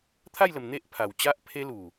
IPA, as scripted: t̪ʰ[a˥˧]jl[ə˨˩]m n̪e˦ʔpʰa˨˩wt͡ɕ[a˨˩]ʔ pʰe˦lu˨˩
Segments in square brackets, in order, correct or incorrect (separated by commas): correct, correct, incorrect